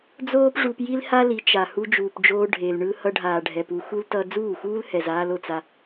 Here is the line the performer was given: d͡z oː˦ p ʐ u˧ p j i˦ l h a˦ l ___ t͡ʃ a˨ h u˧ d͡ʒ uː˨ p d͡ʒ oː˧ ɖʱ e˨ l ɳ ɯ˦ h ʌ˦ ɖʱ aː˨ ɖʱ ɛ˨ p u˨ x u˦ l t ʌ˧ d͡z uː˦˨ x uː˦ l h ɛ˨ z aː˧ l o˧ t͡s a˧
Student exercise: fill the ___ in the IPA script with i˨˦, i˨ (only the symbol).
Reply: i˨˦